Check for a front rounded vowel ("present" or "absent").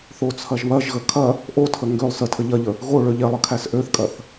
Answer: present